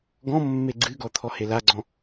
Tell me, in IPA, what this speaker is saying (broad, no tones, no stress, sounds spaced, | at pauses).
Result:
ɡ ɔ̃ mː e ɡ͡ǀ ɨ ɡ ɔ t̪ʰ ɔ h e l a ɡ͡ǀ ɔ̃